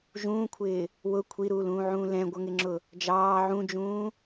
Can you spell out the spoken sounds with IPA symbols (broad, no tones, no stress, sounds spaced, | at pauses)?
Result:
ʒ ũː kʷʰ ɪː | w ʊ kʷʰ i ɾ uː l ũː ʕ ũː l ɛ̃ ɡʷ ʌ ŋ ɪ ŋ͡ǁ ʊ | d͡ʒ ɑː ʕ ũ d͡ʒ ũː